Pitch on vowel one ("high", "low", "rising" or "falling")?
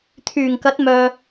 low